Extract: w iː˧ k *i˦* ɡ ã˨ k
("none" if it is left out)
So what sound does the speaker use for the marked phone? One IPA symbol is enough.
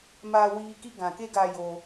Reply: i˦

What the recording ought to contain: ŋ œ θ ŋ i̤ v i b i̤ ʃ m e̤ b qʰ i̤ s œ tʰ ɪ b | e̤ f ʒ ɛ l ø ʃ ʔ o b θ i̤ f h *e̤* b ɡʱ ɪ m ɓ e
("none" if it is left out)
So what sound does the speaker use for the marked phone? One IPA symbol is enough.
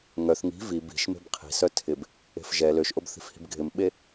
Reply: i̤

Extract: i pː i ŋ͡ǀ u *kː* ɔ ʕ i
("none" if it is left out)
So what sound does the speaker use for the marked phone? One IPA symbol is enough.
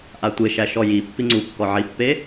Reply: kː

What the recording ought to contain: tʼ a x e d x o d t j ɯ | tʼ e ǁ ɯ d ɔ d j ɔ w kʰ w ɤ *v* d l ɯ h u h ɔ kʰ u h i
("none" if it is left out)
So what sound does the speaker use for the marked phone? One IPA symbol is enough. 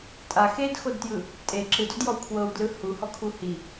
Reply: w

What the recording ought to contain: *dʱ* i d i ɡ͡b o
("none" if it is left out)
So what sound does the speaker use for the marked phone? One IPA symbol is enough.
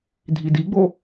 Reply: dʱ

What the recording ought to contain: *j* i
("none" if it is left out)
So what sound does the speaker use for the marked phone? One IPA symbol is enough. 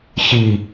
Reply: ç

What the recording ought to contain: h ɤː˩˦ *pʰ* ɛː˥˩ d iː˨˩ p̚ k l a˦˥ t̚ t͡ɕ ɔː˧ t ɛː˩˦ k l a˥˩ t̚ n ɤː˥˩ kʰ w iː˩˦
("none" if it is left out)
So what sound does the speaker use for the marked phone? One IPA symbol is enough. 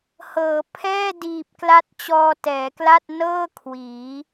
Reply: pʰ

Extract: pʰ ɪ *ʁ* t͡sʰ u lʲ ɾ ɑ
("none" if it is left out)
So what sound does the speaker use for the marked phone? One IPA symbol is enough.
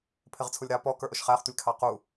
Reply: ʁ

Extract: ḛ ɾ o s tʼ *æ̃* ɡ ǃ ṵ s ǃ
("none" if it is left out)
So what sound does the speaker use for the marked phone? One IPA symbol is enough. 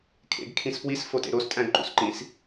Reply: æ̃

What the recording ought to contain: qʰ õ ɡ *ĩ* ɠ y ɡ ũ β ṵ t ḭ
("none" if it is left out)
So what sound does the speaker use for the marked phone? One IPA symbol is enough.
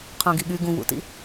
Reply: i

